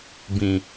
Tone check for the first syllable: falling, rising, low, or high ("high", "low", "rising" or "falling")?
low